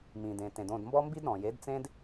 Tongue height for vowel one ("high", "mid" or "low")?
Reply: high